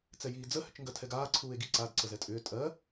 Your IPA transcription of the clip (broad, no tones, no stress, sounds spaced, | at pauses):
t͡s ɛ j iː d͡z ə h ʏ t͡ʃ ŋ ɡ ɜ tʰ ɛ ɡ aː ǀʰ uː e̯ ɡ i ǀ a d ǀ ə z ɛ tʼ ʏː tʼ ɜ